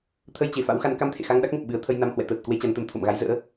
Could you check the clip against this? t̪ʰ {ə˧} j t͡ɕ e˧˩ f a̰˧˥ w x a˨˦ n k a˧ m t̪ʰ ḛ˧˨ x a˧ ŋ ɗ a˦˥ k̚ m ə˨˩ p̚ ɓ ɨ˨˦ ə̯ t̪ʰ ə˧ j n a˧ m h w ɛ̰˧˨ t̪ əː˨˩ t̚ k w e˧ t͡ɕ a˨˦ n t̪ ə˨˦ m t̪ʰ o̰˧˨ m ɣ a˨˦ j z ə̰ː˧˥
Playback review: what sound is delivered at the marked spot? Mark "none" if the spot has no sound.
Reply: ə˧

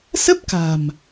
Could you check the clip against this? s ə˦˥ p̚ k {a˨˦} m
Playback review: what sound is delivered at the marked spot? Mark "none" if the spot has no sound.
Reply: a̤˨˩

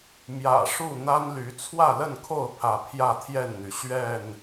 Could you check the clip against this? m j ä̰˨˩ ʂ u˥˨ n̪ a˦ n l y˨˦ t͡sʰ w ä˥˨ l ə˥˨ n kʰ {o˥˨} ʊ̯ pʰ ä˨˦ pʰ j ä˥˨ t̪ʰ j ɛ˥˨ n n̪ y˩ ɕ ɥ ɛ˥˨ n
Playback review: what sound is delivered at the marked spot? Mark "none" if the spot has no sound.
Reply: o˥˨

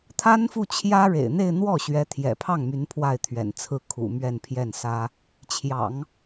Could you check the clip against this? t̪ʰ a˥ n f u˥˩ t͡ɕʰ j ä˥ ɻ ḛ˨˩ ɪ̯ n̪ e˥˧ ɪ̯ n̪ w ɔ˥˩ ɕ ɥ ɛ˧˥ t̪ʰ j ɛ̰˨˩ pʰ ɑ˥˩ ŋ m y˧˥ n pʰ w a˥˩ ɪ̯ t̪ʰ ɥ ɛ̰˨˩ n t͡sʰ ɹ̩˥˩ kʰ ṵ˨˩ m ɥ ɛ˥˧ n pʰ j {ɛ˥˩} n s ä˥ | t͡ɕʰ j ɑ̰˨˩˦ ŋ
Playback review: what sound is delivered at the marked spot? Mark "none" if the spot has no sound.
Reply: ɛ˥˩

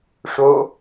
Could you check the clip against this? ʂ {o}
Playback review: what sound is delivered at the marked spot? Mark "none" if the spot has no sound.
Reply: o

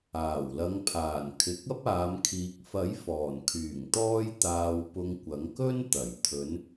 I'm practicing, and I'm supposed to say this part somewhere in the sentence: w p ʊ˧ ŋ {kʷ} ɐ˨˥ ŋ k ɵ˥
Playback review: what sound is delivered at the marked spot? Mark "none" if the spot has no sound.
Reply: kʷ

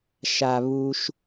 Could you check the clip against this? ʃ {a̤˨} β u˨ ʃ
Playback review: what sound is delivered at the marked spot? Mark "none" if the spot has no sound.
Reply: a˨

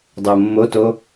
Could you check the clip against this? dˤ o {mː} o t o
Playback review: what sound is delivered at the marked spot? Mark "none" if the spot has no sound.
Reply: mː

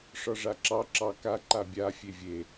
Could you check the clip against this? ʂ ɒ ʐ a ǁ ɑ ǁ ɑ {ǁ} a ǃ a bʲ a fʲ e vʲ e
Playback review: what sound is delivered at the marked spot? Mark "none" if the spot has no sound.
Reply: k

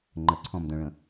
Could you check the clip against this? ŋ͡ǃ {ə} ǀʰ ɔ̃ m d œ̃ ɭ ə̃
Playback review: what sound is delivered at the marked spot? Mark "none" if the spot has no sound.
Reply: ə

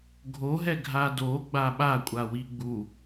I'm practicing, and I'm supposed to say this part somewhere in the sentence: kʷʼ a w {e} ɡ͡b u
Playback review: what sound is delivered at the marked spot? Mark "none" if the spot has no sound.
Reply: i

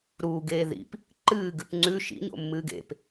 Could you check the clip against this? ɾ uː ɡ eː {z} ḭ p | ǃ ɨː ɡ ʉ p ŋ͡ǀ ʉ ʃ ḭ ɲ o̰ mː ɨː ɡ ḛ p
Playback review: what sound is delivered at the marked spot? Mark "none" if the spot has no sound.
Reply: ð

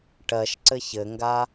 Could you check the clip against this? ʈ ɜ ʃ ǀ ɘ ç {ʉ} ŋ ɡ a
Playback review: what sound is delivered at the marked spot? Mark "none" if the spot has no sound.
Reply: ɘ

